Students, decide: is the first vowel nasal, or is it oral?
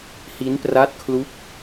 oral